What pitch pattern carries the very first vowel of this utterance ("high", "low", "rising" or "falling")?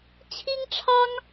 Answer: high